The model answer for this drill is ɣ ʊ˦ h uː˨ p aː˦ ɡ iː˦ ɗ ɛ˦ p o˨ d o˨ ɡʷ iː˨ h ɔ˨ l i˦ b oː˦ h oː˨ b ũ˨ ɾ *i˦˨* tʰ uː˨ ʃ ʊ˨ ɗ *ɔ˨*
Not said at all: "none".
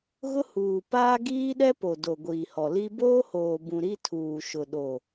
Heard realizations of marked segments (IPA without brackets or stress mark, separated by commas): i˦, o˨